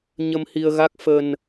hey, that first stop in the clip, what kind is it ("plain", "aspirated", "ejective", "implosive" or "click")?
plain